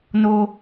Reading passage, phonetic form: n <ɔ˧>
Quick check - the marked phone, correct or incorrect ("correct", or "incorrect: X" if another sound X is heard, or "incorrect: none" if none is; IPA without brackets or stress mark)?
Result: incorrect: o˧